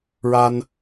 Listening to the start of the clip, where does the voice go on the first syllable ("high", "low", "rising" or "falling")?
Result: high